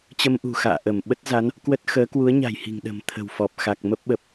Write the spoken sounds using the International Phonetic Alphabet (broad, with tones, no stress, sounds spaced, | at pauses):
t͡ɕ ə˧ m ʔ ṳ˨˩ x a̰ː˧˨ ʔ ə˧˩ m ɓ ə˦˥ t̚ z a˨˦ n | k w ə˦˥ t̚ x əː˨˦ k w u˨˦ ə̯ ɲ a̤˨˩ j h i̤˨˩ ŋ ɗ ə̤˨˩ m t̪ʰ ə̤˨˩ w f ɔ˨˩ p̚ x a˨˩ k̚ m ə˦˥ p̚ ɓ ə˨˩ p̚